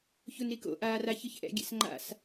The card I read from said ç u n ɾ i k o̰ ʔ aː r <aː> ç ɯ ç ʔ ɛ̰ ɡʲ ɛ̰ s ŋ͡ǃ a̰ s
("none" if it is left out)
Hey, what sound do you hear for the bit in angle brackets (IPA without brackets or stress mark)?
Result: a